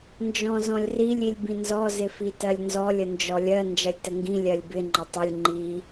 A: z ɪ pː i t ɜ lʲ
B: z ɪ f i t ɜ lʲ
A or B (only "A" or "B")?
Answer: B